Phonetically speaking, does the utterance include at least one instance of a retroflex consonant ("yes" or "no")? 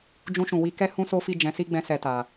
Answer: no